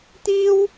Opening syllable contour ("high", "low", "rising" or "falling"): high